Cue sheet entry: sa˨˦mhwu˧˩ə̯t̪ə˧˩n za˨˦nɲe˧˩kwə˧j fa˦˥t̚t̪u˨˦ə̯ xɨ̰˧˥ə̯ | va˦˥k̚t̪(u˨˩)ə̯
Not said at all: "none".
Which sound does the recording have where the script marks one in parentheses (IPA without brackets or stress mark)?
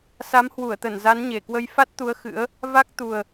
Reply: u˨˩